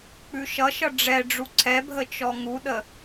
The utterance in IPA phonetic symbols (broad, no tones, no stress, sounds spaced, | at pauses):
k͡p ʉ ʃ ʌ ʃ ʌ ɖ͡ʐ ɛ ɖ͡ʐ u ǀʰ ɛ bʱ ə t͡ʃ ɔ ŋ u ɗ ə